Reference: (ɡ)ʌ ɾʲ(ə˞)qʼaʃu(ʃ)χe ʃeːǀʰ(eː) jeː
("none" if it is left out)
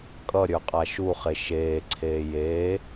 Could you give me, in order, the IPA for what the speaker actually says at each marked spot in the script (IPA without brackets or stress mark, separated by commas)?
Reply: kʼ, ə˞, none, eː